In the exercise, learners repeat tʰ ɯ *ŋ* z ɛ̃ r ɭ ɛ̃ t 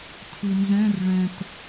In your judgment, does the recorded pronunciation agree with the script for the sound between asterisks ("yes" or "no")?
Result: no